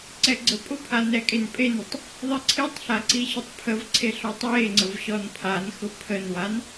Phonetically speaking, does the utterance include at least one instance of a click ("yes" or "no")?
yes